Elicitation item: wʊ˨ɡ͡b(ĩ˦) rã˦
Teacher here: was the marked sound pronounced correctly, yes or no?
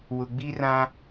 no